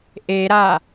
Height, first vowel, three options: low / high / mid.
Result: mid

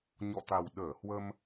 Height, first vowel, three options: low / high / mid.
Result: mid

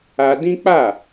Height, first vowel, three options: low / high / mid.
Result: low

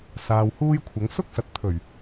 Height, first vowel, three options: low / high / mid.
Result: low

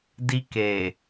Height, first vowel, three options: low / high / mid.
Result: high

